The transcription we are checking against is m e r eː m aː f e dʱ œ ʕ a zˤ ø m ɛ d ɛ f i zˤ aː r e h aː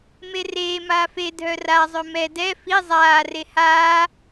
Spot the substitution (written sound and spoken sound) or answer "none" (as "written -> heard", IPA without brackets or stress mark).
ʕ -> r